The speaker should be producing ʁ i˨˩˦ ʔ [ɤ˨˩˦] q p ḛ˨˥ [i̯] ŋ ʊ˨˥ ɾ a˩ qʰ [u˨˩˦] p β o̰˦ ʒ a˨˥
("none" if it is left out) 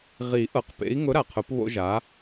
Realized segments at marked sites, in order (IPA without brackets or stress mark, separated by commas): ɤ˨˩˦, i̯, ʊ˨˩˦